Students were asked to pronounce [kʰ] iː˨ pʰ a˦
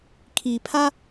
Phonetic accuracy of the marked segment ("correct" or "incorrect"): correct